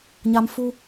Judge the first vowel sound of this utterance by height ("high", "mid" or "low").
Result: low